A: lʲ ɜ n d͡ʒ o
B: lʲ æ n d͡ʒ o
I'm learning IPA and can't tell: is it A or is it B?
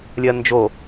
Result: A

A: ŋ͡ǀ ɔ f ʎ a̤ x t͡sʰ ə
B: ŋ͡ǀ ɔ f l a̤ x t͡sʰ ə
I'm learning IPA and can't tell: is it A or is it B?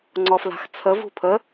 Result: B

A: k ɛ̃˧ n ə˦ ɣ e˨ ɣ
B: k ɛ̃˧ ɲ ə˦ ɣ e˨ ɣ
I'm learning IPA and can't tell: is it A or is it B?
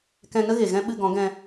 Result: A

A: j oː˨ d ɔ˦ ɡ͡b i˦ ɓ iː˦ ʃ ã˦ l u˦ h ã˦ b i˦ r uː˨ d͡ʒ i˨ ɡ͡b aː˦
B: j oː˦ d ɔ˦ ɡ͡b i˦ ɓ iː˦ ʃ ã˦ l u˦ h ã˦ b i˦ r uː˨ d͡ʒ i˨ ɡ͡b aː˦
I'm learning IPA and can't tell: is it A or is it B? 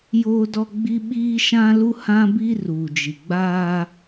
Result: B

